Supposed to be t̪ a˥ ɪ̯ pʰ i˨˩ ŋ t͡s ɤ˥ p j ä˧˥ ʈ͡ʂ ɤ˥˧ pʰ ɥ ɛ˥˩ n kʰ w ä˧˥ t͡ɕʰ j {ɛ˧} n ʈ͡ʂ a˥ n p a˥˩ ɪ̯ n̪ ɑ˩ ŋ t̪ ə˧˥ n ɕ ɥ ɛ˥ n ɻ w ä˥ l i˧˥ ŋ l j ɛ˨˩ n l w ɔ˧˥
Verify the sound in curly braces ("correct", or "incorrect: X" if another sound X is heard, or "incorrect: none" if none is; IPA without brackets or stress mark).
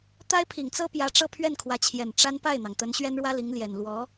incorrect: ɛ˨˩